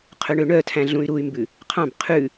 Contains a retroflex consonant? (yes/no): yes